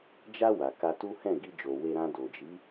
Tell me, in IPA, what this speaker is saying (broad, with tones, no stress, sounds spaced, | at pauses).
d͡ʒ a˧ w a˨ k a˧ t u˦ h ɛ̃˦˨ ɡ i˧ d͡ʒ o˨ w e˧ ɾ ã˧ d o˨ d͡ʒ i˨˦